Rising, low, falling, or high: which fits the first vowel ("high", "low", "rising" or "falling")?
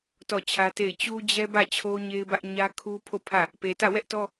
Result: falling